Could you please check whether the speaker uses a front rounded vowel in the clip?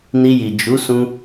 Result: no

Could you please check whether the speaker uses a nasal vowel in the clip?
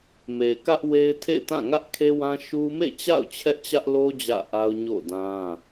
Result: yes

